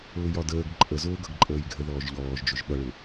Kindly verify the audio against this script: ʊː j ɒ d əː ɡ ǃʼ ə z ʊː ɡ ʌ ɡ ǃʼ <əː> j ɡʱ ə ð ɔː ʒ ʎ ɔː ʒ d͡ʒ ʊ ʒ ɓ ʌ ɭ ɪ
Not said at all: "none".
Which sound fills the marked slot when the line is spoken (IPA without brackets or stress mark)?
əː